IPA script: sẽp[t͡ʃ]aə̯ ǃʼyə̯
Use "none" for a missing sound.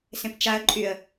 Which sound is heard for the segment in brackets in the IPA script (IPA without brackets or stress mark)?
t͡ʃ